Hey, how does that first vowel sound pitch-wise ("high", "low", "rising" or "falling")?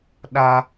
high